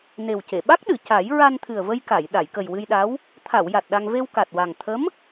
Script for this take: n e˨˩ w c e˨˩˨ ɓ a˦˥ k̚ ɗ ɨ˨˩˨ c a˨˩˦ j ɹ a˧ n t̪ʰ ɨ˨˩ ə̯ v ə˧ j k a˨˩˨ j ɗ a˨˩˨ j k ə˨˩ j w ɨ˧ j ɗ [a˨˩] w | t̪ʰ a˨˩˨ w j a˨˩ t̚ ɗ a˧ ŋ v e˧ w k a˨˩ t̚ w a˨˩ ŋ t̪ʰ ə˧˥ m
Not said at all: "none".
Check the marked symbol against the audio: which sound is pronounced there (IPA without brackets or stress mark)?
a˧˥